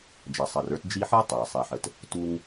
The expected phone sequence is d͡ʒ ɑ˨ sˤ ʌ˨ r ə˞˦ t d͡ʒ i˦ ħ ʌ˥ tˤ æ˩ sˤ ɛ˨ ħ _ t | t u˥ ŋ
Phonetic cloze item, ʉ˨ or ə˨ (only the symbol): ə˨